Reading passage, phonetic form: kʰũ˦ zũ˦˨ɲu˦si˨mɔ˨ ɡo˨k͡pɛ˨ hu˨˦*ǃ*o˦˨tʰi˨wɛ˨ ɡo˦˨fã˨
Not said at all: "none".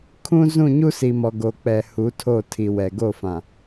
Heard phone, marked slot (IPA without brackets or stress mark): tʰ